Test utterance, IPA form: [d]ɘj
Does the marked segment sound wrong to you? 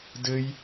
no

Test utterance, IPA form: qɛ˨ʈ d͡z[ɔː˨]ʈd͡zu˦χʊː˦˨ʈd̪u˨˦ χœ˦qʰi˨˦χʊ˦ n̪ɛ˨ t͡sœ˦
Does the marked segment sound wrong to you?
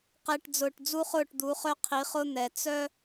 yes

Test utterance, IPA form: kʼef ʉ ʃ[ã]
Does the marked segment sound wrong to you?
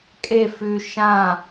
no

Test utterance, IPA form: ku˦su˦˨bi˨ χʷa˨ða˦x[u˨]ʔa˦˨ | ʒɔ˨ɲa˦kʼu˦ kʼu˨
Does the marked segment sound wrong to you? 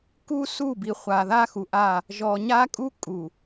no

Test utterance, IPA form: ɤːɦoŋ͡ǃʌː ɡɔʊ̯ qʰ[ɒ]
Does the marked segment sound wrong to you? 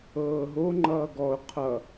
yes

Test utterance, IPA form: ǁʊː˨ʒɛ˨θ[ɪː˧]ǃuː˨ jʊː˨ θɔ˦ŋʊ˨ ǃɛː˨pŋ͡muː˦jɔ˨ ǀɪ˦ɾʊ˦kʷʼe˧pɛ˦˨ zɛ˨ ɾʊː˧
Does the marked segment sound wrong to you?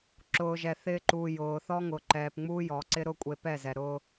no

